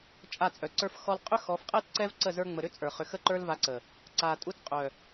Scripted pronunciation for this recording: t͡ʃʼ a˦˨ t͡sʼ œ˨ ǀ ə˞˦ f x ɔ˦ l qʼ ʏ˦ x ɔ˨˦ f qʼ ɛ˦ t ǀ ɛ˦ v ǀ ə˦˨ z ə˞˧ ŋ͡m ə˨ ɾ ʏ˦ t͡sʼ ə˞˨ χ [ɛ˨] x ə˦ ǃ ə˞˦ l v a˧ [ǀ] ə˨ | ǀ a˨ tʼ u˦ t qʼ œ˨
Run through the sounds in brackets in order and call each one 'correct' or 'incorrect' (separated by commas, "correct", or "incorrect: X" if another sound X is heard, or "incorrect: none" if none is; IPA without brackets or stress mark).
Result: incorrect: ʏ˨, correct